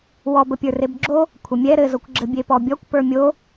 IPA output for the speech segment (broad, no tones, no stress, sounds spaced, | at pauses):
w ɔ b ə pʲ ə˞ r e b ɡ͡ǁ o | kʷʰ ə mʲ ɛ ɾ ɘ z o kʷ ɡ͡ǁ ɘ bʲ e p ɔ bʲ ɔ kʷ p ə˞ mʲ o